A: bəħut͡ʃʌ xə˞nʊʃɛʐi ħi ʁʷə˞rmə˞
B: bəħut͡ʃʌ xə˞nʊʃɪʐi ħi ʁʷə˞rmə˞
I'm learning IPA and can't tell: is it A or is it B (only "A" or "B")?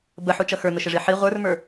B